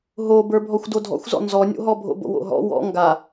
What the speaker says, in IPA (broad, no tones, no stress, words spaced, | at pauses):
ɦobə˞ bʱɔxʷdodʱɔ̰xʷzɔ̰ nzɔnʲo̰ɦɔ bʱo̰bo̰wo̰ɦɔ̰ wɔ̰ ŋɡa